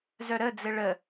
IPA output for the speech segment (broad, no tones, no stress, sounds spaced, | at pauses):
z œ ɾ ə d͡z ɘ ɭ ə